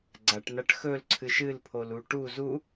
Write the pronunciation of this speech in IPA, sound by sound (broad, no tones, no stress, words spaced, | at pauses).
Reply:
ɡ͡ǀaʈnaʈ xɵlǀʰɨʃ ɨlpʰolu ʈu zu